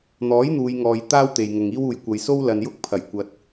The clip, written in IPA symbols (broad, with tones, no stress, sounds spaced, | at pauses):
n̪ ɔː˨˥ j n̪ uː˨˧ j ŋ ɔː˨ j t̪ aː˥ w t̪ e˨ j ŋ ʊ˨ ŋ iː˥ w uː˨ j kʷ ɐ˨ j s o˥ w l ɐ˨ n j ʊ˥ k̚ pʰ ɐ˨˩ j kʷ ɐ˨ t̚